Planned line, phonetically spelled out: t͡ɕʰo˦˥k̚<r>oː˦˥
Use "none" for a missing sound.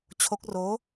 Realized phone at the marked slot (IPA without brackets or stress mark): r